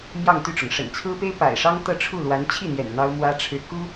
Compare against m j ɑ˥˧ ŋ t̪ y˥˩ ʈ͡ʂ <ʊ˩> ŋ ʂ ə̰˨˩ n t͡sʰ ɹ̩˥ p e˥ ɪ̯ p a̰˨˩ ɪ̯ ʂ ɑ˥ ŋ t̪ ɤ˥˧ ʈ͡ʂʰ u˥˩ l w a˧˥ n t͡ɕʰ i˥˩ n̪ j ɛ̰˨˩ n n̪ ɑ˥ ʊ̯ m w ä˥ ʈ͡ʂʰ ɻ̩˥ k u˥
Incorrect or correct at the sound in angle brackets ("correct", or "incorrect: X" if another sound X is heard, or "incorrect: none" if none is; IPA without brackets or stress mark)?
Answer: correct